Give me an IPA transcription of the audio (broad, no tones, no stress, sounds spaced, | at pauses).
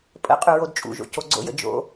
pʼ ə̰ qʼ ʉ ɹ o d t͡ʃʼ ṵ ʒ o̰ c o ɡ͡ǀ o̰ j ə̰ d͡ʒ o̰